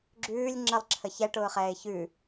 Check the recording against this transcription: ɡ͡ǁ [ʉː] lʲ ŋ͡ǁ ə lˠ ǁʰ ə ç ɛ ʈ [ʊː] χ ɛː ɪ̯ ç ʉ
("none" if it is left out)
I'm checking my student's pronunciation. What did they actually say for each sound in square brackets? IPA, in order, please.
ʉː, ʊː

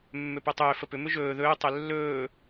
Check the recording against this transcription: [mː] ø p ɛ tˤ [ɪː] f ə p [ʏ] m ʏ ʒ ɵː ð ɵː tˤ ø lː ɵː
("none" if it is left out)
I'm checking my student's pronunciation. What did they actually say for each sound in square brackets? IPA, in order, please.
mː, ʏː, ʏ

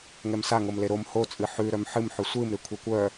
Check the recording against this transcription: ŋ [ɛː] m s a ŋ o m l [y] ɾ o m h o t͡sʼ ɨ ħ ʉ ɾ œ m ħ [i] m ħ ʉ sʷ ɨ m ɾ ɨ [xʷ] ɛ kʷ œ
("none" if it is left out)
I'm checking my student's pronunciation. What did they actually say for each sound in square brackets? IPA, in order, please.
ɛ, e, ɨ, kʷʰ

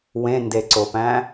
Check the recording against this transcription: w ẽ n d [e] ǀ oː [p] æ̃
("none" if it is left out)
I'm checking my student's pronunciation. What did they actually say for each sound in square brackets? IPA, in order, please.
e, p

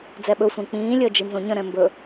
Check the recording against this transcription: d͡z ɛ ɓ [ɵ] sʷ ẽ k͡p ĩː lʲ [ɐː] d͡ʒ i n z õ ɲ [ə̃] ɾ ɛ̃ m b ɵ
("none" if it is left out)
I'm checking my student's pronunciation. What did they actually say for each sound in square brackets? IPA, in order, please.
ɵ, əː, ə̃

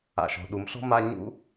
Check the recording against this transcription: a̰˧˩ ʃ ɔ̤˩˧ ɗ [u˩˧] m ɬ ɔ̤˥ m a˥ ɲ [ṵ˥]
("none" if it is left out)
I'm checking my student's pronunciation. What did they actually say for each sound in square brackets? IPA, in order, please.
u˩˧, ṵ˥

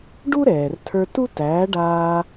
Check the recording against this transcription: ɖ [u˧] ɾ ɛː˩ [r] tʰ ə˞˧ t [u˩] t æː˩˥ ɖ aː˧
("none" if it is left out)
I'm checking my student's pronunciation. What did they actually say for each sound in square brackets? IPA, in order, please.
u˥, r, u˥

